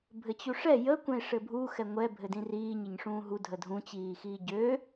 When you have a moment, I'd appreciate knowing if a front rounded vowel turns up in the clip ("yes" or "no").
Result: yes